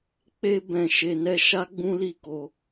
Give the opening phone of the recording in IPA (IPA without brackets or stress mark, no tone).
k͡p